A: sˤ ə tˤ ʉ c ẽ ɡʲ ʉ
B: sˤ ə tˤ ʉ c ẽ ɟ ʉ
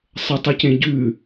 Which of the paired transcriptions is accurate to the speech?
B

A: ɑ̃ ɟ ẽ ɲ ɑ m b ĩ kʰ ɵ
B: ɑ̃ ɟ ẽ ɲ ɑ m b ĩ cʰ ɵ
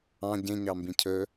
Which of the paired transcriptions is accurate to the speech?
B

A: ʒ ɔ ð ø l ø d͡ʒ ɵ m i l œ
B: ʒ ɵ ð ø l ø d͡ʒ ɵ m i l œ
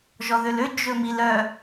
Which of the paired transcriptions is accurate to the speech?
A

